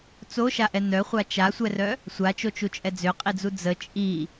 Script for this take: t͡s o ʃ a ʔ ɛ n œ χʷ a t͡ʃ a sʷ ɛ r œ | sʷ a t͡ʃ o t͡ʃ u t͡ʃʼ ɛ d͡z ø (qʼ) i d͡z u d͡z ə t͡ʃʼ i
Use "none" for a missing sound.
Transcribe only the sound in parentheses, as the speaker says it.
qʼ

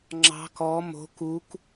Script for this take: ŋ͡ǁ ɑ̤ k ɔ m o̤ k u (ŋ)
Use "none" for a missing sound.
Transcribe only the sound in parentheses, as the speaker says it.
k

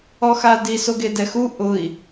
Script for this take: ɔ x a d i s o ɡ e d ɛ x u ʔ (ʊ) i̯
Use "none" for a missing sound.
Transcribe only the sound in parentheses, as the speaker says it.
ʊ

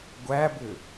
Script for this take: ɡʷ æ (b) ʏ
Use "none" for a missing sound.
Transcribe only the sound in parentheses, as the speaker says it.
b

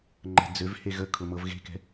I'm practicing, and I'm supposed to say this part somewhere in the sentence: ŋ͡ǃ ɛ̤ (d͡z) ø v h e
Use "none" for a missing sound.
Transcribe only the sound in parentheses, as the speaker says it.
d͡z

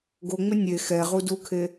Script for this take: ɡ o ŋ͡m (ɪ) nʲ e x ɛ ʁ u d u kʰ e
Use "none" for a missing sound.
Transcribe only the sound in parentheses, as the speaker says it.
ɪ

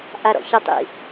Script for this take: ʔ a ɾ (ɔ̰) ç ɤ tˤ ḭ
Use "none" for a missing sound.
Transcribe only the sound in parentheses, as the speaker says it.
ɔ̰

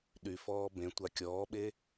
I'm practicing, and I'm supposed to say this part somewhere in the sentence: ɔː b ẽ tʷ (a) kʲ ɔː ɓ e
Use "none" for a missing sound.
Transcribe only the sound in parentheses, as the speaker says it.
a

